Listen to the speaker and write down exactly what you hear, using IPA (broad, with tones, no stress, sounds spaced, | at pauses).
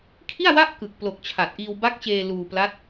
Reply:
kʰ i˥˩ a̯ w a˥˩ ʔ k ɯ˨˩ k̚ p l o˨˩ k̚ t͡ɕʰ a˨˩ t̚ ʔ iː˧ w b a˦˥ k̚ t͡ɕ eː˧ l uː˧ p l a˦˥ t̚